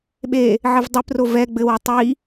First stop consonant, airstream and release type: implosive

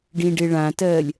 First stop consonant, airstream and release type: plain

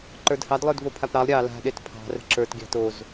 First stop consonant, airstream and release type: click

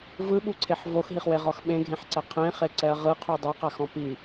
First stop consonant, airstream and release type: implosive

